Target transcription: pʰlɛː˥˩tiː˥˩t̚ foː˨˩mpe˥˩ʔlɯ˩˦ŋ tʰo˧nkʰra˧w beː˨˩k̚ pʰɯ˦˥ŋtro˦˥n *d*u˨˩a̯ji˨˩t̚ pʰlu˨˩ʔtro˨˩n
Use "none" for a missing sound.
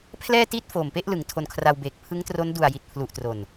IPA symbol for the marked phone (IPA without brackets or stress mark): d